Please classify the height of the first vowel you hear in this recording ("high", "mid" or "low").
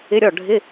high